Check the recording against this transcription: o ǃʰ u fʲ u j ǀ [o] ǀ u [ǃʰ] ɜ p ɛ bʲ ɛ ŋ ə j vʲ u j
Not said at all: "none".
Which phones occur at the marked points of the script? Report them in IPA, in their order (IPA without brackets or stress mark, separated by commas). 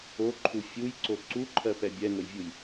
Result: o, ǃʰ